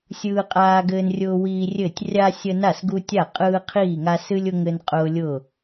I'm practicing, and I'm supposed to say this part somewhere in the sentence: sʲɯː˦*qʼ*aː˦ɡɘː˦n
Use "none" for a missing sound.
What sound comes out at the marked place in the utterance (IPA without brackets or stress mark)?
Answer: qʼ